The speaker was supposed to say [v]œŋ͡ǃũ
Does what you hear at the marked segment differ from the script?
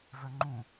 no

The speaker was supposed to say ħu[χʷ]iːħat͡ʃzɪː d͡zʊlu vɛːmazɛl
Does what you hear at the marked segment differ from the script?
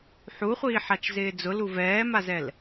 no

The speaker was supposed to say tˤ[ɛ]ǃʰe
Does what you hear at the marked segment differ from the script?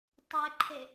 no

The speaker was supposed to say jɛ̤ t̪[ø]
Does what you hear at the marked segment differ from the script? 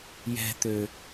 no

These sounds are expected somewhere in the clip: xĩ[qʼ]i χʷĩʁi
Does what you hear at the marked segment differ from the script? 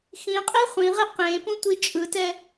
no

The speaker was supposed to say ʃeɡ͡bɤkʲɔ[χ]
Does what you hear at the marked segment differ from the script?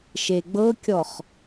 no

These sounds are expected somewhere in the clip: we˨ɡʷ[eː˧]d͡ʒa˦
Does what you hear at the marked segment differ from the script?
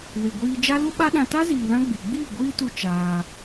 yes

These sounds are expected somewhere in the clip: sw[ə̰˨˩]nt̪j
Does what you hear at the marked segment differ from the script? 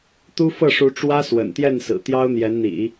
no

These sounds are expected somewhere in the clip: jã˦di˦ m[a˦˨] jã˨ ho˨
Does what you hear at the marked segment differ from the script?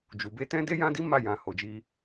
no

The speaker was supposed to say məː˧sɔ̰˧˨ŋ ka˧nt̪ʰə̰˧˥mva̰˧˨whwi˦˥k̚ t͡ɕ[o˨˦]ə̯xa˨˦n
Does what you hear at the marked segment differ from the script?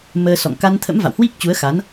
yes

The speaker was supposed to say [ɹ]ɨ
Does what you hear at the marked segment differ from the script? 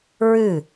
no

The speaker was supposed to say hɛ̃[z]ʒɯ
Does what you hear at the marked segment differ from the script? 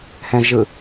no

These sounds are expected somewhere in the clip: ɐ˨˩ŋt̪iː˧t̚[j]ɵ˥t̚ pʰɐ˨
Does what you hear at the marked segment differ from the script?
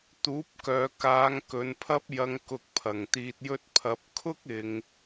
no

